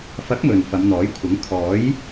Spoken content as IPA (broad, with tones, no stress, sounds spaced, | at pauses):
f ɐ˨˥ k̚ m ɵ˨ n f ɐ˨˧ m n̪ ɔː˨˥ j kʷʰ ɐ˨˥ ŋ kʰ ɔː˨˥ j